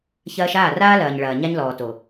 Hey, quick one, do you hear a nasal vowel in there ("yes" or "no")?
no